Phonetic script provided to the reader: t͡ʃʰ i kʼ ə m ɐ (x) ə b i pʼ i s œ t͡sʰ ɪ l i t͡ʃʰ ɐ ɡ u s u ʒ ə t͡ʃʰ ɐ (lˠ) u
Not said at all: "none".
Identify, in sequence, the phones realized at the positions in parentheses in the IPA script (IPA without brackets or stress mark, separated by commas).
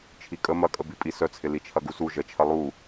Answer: kʼ, lˠ